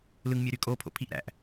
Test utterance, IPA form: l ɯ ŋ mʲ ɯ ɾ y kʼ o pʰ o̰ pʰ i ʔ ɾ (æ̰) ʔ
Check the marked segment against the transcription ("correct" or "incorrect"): correct